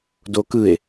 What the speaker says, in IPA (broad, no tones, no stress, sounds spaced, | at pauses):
d o k ɯ e̯